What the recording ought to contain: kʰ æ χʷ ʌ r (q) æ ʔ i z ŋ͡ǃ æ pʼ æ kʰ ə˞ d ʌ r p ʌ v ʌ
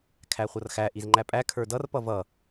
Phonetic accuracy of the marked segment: incorrect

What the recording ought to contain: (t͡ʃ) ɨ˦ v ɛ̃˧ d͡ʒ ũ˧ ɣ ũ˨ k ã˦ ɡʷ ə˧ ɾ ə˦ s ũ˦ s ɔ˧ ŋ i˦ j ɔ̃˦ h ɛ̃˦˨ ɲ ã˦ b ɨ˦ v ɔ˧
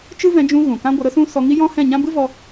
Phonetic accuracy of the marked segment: correct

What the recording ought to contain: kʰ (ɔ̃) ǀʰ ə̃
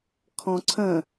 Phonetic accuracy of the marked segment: correct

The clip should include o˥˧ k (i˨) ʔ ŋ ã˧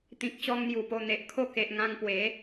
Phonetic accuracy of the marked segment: incorrect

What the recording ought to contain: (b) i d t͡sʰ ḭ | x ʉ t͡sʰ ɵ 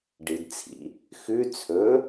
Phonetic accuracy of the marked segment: incorrect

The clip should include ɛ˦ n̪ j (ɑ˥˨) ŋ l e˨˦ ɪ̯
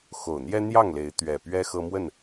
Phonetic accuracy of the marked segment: correct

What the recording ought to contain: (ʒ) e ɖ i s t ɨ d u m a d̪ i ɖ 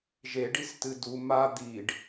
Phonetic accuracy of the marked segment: correct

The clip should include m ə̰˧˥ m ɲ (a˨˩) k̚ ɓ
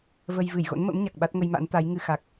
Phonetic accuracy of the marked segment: correct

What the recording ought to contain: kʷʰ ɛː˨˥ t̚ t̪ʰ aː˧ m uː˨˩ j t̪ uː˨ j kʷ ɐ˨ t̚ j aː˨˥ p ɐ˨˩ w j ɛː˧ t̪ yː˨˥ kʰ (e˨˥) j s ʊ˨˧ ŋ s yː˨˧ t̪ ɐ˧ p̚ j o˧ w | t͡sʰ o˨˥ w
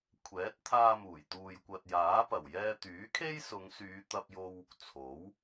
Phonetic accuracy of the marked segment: incorrect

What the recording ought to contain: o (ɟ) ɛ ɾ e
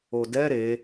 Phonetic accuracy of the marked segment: incorrect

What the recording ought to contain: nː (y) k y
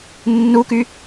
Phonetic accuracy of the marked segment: incorrect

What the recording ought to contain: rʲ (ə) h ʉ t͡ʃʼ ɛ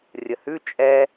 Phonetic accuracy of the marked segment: correct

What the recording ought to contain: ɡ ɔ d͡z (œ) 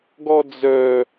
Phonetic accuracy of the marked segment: correct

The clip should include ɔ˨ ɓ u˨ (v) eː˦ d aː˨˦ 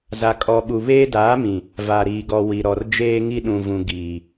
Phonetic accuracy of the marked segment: incorrect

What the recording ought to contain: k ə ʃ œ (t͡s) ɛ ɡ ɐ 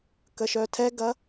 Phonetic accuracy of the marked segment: incorrect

